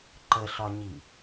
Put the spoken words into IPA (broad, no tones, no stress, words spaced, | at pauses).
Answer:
ǃəɬɒɲi